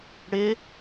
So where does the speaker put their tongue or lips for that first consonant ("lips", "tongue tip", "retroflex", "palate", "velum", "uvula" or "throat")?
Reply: retroflex